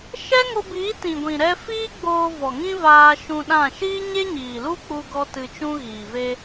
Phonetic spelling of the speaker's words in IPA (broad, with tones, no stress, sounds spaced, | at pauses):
ʃ ɛ˦ ŋ o˧ b iː˨˦ t ĩ˨ ɡʷ ĩ˨ ɾ ɛ˧ f iː˦ ɡ͡b oː˧ v ɔ˨ ŋ ĩ˦ v aː˧ ʃ ũ˧ ɗ ã˦˨ ʃ iː˦ ɲ e˦ ɲ iː˨ l u˦ k͡p u˦ ɡ ɔ˦ t ɨ˧ t͡ʃ ũ˦ ɣ iː˨ v e˧